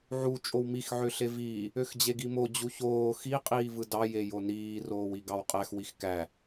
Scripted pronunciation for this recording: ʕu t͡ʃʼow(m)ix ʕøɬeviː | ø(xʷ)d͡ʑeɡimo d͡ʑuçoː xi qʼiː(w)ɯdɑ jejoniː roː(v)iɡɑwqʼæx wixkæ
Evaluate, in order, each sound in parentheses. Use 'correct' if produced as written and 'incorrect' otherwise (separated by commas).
correct, incorrect, incorrect, incorrect